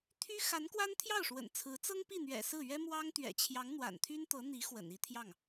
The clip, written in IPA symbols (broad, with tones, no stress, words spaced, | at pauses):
t̪ʰy˥ xa˧˥nkwa˥n t̪ʰjɑ˥˩ʊ̯ʂwə̰˨˩n t͡sʰɹ̩˧˥ t͡sɤ˥ŋpi˥˩n̪ɥɛ̰˨˩ sɹ̩˥˩ ɥɛ˥ mwɑ˥ŋ t̪ɥɛ̰˨˩t͡ɕʰjɑ˧˥ŋ n̪wa̰˨˩nt̪ʰy˥nt̪ɤ˧˥n̪i˧˥ xwə̰˨˩ni˥t̪ʰjɑ˥˩ŋ